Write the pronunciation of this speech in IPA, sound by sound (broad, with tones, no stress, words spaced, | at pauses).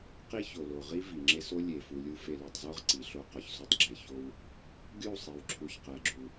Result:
qi˦ ço˨lo˨ ʁi˦ vi˨ŋ͡ǁe˦so˦ lʲe˨fu˨lʲu˦ fe˨lu˨tˤzo˦ʁ ǀi˨ɬo˦ qɒ˨çsu˦tˤɡ͡ǁe˨ ço˦w | ɡʲu˦˨sˤi˨wǁʰu˨ç qæ˨ɡ͡ǁu˨